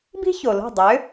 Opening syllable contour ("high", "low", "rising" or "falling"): high